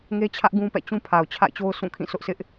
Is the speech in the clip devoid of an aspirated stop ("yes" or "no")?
no